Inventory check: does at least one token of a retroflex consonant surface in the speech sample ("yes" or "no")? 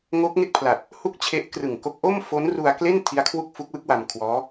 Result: no